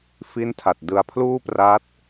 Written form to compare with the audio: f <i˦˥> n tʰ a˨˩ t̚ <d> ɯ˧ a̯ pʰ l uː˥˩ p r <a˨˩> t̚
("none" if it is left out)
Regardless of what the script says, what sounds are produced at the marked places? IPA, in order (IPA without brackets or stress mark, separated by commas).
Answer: i˦˥, d, a˦˥